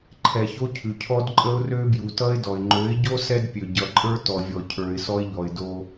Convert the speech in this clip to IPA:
ǃʰ ɛ˨ ç o˦ cʰ ʉ˨ cʰ ɔ˦ d ǃʼ ə˦ ʊ̯ r ø˦ b j u˨ t ʌ˦ ɪ̯ d ɔ˨ ɪ̯ ŋ͡ǃ ø˨˦ ɪ̯ ɟ o˦ s ɛ˦ d pʲ ø˨ ɟ ʌ˨ ǃʼ ə˞˦ t ɔ˨ vʲ ɔ˨ cʰ ə˞˨ ɪ̯ s ɔ˦ ɪ̯ ʎ ɔ˨ ɪ̯ d o˦

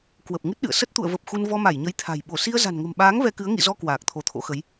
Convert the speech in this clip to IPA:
k w ə˨˩ p̚ ŋ ɨ˦˥ t̚ ɗ ɨ̰˧˨ ə̯ s ə˦˥ t̚ t̪ ṵ˧˨ ə̯ v ə˨˩ p̚ x u˧ n v ɔ˧ m a˧˩ j ɲ ə˨˦ j t̪ʰ a̤˨˩ j ɓ o˧˩ s i˧ ə̯ z a̤˨˩ n ŋ ə̤˨˩ m ɓ aː˨˦ ŋ v ɛ˧ k ɨ˨˦ ə̯ ŋ ḭ˧˨ z ɔ˧ k w aː˨˩ k̚ t̪ʰ o˧˩ t̪ʰ o̰˧˥ x ə˨˦ j

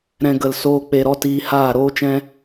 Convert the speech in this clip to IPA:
ɾ ɛ̃˧ ɡ ə˧ l s oː˦ k͡p e˧ ɾ ɔ˦ t iː˧ h aː˦˨ ɾ oː˦ t͡ʃ ɛ̃˦

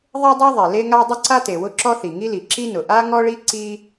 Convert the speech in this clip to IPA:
ðˤ e˥ dˤ ɛ˥ ðˤ ɛ˩ l e˥ ŋ a˥ dˤ ʊ˥ ǀ a˥ t e˩ w ʊ˥ ǁ ɔ˥ θ i˩ ŋ i˥ l i˩ ǁ i˥ n ʊ˩ ʔ a˥ ŋ ɔ˥ ɭ i˥ ǀ i˥

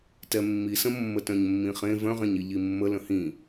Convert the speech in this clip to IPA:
t ɛ mː i s ə̃ mː ə t œ̃ ɲ mː ĩ χ ẽ v œ̃ ʁ ẽ ɲ i ʎ i mː ə l ə̃ h ĩ

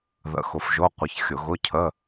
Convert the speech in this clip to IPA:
ð ə̰˧˥˧ x ʊ˧ f ʒ o˧˥˧ qʷ ə˧ ç xʲ ʊ˧˩˧ ɣ ʊ˧˥˧ cʰ ə˧˥˧

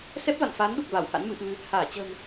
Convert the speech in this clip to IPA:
s ɛ˦˥ p̚ v a̰˧˨ n f aː˨˦ n ɗ u˨˩ k̚ v a˧˩ w h a̰˧˥ n m ɨ˧ ʔ ɨ˧ | h aː˧˩ t͡ɕ ə̤˨˩ n

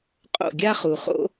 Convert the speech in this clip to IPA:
qʼ o̰˦˨ ɡʲ a˦ χ u˨ χ o̰˦

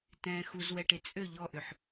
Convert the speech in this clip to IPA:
t ɛ̃ː x u z w ɛ ʈ e t͡sʼ ø ʎ ɔ ʔ ʏ ħ

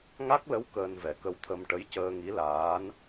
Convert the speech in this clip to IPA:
ŋ a˦˥ k̚ l ə˧˥ w k əː˧ n v ɛ˨˩ k ə˧ w t̪ʰ ə˧ m ʈ ə˧˥ j c əː˧ ŋ i˧˥ l aː˧˥ n

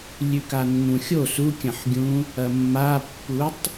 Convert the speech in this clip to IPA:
lʲ ʉ k a nː ũ xʲ o s u kʲ ɐ̃ ħ ɡʲ ũ | ɐ mː a pː u tˤ

